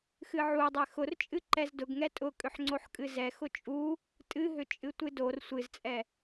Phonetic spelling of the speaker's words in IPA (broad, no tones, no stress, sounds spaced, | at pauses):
x ɨ ʕ u dˤ ɛ x ʊ r t͡ʃʼ ɨ ǃ ɛ z d ʊ ɡ ŋ ɛ tʼ ʊ kʼ ʏ ħ ŋ͡ǀ o ħ kʼ ɨ z ɛ x ʊ t͡ʃʼ u | tʼ ɨ ɦ ʏ t͡ʃʼ ɨ tʷ ɨ d o r sʷ ɨ z t͡sʼ ɛ